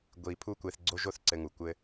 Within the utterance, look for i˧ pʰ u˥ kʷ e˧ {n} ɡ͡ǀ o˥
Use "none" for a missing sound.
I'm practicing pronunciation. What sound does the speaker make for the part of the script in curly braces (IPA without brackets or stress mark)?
θ